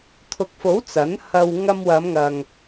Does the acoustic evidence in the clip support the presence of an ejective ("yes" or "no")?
no